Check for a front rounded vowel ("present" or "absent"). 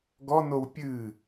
absent